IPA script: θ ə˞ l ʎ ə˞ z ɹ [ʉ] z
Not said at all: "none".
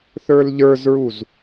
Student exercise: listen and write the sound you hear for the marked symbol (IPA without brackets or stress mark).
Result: u